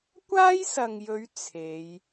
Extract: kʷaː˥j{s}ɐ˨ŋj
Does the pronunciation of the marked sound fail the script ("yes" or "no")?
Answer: no